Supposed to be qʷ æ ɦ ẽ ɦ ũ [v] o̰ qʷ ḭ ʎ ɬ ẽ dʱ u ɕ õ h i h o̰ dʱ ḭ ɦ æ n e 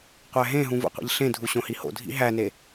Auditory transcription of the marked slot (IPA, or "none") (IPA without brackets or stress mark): v